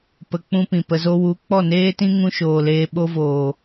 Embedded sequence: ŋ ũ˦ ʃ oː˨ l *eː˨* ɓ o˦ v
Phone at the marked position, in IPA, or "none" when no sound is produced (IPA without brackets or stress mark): eː˧